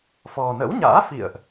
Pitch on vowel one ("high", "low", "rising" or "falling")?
low